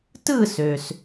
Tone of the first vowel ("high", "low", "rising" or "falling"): falling